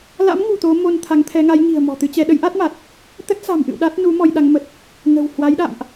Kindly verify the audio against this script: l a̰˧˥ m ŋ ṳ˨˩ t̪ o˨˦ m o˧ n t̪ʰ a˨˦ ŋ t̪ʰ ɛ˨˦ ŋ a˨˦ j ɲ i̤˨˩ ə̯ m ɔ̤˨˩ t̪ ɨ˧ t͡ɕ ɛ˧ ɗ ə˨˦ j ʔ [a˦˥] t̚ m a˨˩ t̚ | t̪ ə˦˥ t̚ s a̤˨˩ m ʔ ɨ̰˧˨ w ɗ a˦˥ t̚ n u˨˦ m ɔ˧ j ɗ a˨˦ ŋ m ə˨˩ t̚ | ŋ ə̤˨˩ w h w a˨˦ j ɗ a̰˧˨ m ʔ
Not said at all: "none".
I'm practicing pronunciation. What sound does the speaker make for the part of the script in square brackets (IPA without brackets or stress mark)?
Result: a˦˥